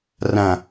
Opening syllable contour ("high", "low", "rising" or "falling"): low